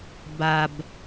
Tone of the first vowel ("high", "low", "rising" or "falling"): low